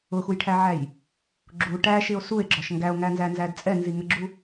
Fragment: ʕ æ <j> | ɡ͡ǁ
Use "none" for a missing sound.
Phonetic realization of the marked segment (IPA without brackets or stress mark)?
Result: j